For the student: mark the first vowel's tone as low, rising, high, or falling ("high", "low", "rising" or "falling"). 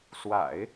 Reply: low